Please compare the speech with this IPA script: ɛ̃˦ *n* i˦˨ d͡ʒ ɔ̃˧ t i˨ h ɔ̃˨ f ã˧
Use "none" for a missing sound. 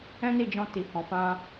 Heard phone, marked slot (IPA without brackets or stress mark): n